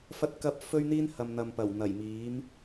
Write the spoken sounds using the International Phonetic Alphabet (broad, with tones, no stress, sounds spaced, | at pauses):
f ɐ˧ t̚ k ɐ˧ p̚ f ɵ˥ ɥ n̪ iː˥ n h ɐ˨ m n̪ ɐ˨ m p ɐ˨˩ w n̪ ɐ˨˩ j m iː˨˥ m